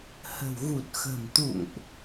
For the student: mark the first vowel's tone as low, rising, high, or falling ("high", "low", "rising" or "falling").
low